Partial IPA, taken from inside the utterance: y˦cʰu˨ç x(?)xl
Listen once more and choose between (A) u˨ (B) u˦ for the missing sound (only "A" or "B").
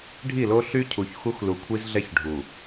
B